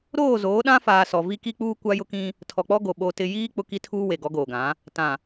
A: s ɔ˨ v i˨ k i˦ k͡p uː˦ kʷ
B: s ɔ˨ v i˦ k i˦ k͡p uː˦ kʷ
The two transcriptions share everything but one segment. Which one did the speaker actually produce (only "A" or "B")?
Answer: B